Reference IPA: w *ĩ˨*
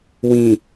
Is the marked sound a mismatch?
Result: no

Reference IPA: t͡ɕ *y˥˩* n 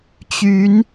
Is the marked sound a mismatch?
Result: yes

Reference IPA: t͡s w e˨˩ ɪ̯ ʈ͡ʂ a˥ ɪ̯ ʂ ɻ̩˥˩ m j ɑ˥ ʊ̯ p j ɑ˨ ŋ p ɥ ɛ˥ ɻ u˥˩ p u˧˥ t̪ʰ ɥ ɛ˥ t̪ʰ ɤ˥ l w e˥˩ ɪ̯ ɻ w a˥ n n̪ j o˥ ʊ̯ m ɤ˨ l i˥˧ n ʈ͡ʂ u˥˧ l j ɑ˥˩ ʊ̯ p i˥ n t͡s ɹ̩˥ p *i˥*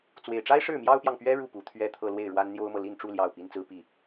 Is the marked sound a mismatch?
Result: yes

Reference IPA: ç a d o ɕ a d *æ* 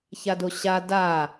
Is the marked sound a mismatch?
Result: yes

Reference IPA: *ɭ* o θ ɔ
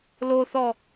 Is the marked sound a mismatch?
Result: yes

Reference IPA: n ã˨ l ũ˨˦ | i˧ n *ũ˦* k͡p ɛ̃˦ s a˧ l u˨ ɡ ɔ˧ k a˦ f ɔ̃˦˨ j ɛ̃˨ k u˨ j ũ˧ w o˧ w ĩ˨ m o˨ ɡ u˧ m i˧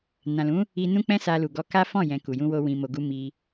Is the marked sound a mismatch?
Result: no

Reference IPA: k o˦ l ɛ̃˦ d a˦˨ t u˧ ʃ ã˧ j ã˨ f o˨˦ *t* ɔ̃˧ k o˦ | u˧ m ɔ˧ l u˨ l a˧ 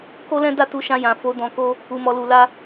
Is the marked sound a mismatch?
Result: yes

